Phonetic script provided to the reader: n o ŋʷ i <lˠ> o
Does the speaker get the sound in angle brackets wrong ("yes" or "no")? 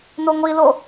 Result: yes